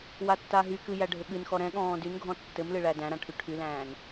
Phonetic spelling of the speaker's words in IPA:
watːaɦykɨ jæɖʱɘɠɨnxɔ ɾɛ̃ɠɔ̃ː dyn ɡʱɔ̃tːɘmlɨ ɭædæ̃ɾã ʈʰyʈʰylæ̃ːn

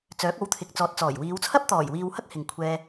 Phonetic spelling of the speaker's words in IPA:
t͡sœː˨˥k̚o˨˥wt̪ʰɪ˨k̚ t͡sɔː˨t̚t͡sɔː˨˩jwiː˨˧wt͡sʰɐ˥p̚ t̪ɔː˨˩jwiː˨w hɐ˥k̚hɪ˨ŋ kʷʰɛː˧

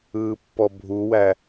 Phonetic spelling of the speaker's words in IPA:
ɯːpːɔbʱuwæ

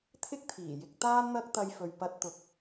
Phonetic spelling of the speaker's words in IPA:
t̪ʰɪ˥k̚t̪ʰiː˨˩jɪ˧k̚ t̪aː˥nn̪ɐ˥k̚t̪ɐ˧j fɵ˨ɥpɐ˧t̚t̪ʊ˨k̚

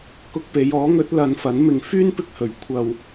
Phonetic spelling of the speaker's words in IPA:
kʊ˧k̚pe˨˧j ɔː˨˥ŋɵ˨˥t̚ lɐ˨˧nfɐ˨˥n mɪ˧ŋfyː˥n pɪ˧k̚hɵ˨ɥ kʷʰɐ˧w

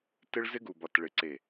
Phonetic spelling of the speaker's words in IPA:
tɪ˦ɭzɪ˦ɡu˨bɒ˨t ɭɪ˨ǀe˨

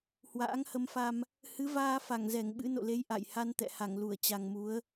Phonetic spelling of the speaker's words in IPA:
hwa̰ː˧˥ŋhə˧mfa˧m | hɨ˨˦vaː˧fa˧˩ŋzɛ˧˩ŋ ɓɨ̰˧˥no̰˧˨le˨˦j ʔa̰˧˨j ha˧nt̪ɛ̰˧˨ha˧˩ŋlu˧˩ə̯ t͡ɕa˨˩ŋmu˨˦ə̯

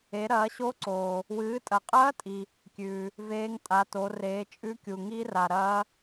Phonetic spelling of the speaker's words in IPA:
e˨˦ɾɐː˨˦ɕo˦˥ǀoː˨ | wɨː˨˦tʼɐ˨qʼɐː˦˥tʼi˨ | kʲʉː˨ | veː˦˥ŋ tʼa˨˦to˨˦ reː˨˦ t͡ʃʼʉ˦˥kʲu˨ ŋi˦˥ra˨ ɾɐː˦˥

